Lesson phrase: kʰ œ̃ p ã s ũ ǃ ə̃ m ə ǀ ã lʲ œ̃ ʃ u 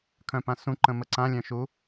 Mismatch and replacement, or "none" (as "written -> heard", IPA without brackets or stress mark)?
none